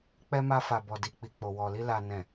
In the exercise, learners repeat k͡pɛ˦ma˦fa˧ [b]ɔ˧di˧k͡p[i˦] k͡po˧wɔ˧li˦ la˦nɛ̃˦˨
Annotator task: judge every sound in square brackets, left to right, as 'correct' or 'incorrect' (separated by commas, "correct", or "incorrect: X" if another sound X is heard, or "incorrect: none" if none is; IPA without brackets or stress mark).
correct, incorrect: i˧